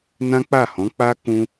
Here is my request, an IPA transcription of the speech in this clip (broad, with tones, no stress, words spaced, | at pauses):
nã˦k͡pa˦˨hɔ̃˨˦k͡pa˦ kũ˦